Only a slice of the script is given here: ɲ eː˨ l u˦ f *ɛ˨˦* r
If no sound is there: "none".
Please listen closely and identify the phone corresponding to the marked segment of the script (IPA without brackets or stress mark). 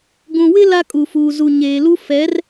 ɛ˨˦